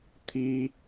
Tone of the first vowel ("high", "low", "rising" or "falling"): high